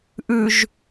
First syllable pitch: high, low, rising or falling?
low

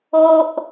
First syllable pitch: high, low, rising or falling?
high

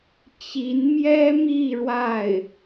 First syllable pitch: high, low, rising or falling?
rising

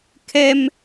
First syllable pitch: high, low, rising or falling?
high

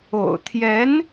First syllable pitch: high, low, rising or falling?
low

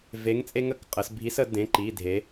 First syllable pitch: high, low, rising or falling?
rising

